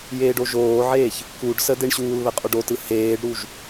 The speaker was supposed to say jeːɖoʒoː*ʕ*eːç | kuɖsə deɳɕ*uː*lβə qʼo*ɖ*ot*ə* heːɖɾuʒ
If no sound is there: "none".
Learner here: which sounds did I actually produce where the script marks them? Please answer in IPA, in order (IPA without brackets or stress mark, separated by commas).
ʕ, uː, ɖ, ɯ